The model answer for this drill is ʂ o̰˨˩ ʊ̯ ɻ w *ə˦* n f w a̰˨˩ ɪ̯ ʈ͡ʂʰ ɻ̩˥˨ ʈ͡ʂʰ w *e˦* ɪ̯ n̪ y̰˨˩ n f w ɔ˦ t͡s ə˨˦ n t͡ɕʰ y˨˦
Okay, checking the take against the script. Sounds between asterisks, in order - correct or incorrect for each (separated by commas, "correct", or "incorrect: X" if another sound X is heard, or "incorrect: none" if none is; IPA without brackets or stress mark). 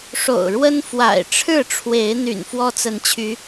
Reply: correct, incorrect: e˨˦